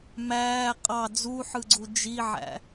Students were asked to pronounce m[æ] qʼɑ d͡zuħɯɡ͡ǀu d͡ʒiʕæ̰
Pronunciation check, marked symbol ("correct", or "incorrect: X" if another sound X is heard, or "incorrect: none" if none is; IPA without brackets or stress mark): incorrect: æː